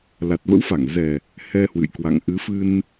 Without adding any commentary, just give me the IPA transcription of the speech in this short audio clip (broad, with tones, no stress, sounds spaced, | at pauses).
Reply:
l a˨˩ t̚ v ə̰˧˥ w f a˧˩ ŋ z ɛ˨˩ | h ɛ˧ h w ɨ̰˧˨ j k w a̰˧˨ ŋ ʔ ɨ˨˦ f ɨ˧ n